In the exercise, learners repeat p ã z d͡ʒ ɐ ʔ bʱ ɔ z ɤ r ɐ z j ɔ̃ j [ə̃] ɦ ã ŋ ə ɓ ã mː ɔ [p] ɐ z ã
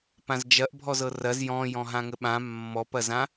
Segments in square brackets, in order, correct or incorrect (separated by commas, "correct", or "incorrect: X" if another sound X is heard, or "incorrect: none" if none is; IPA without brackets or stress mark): incorrect: ɔ̃, correct